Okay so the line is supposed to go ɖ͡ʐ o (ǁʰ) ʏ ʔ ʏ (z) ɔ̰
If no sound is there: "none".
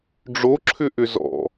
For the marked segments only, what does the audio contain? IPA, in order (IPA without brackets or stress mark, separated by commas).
ǁʰ, z